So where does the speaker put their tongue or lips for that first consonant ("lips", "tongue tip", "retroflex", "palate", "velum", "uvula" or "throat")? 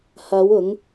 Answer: throat